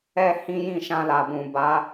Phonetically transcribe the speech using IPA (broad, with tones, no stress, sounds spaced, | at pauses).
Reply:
ɛ˦ h ĩ˦ j ĩ˦˨ ʃ ã˧ l a˨ b ũ˨ b a˨˦